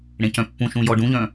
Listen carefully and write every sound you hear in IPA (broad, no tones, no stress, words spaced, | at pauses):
ɽẽcœ̃pːũʃũ jɔɖũʎœ̃